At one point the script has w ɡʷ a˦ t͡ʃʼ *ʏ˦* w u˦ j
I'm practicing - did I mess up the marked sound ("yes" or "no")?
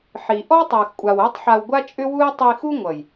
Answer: no